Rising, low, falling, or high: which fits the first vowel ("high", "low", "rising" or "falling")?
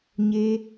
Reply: high